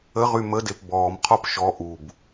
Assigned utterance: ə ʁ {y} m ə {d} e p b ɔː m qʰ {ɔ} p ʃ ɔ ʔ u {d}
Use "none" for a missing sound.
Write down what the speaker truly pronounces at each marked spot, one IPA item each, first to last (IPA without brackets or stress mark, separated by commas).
y, d, ɔ, b